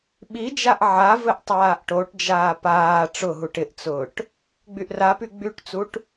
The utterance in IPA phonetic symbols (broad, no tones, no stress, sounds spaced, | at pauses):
ɓ i d͡ʒ a ʔ ʕ a v ɘ ʔ tˤ aː ʔ ʈ o ʈ d͡ʒ aː p aː ʈ͡ʂ ʊ ɦ u ʈ ɪ ʔ t͡s ʊː ʈ | ɡ͡b y ʔ r a p y ɡ͡b y ʈ t͡s u ʈ